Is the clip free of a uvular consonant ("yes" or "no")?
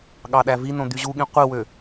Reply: no